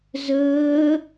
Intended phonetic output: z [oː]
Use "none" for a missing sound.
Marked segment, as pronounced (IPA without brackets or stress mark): ɵː